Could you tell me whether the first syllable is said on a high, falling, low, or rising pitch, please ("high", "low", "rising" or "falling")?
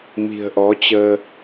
low